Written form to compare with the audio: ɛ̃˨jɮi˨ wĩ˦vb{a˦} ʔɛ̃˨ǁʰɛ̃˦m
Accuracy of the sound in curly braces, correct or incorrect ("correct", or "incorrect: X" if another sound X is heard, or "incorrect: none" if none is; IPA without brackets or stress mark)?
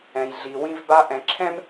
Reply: correct